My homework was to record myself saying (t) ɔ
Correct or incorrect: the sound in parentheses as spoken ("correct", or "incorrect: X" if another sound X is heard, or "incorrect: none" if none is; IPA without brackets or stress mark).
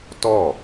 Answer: correct